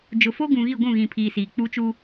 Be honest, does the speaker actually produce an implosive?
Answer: no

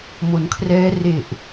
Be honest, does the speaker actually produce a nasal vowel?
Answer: no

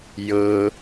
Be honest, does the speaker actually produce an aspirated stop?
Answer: no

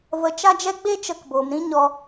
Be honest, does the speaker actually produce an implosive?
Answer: no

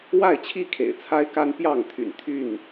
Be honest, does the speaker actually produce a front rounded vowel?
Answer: yes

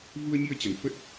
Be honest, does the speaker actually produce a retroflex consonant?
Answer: no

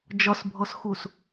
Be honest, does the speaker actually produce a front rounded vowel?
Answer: no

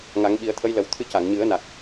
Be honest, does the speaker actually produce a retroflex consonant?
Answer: no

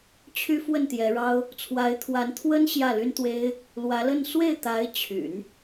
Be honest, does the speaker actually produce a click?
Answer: no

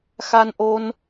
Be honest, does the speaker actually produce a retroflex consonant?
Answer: no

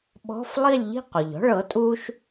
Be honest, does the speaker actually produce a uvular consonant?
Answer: yes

